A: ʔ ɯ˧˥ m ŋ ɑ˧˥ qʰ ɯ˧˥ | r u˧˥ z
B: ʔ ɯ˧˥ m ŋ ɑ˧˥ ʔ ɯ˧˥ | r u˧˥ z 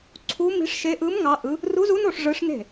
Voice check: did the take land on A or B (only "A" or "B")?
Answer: B